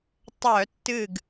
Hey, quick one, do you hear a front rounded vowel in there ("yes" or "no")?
yes